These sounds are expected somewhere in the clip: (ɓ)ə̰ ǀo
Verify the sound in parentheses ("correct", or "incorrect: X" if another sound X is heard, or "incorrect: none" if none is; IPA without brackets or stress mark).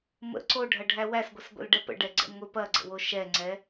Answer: incorrect: m